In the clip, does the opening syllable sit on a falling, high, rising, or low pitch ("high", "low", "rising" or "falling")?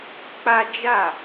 high